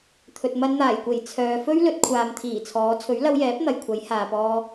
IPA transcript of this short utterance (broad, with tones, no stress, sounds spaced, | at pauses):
t̪ʰ ɵ˨ t̚ m ɐ˧ n n̪ aː˨˩ j kʷ e˨˩ j t͡sʰ œː˨ f ɵ˥ ɥ l ɵ˨˥ t̚ kʷʰ aː˨ m t̪ʰ iː˨˩ t͡sʰ ɔː˨˧ t͡sʰ ɵ˨˥ ɥ l ɐ˧ w j ɛː˨˥ p̚ n̪ ɐ˨ j kʷʰ ɐ˨˥ j h aː˨ p ɔː˧